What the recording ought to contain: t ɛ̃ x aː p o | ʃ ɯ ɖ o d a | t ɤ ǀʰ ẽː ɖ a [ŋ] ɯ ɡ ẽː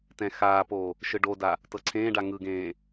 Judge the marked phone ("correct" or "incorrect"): correct